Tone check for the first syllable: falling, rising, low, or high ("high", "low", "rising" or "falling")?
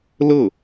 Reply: falling